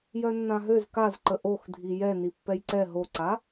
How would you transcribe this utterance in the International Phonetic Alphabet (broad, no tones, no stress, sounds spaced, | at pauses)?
j œ nː ã ɦ ø z k a z ǃ ə ʔ o x dʱ i j ɛ n i pː ɛ j ǀ ɛ ɦ o ǀ a